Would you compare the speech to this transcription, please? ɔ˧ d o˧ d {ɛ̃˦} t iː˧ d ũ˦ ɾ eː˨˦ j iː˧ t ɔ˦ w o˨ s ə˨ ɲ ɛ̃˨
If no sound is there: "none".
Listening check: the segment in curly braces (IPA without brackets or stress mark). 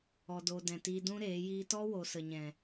ɛ̃˨